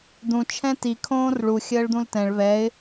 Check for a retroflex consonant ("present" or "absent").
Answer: present